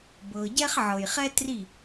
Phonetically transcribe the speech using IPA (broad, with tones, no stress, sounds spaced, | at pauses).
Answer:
b ɤ˧ ɟ ɛ˦ χ ʕ ɤ˨ j χ ɛ˦ t r i˦˨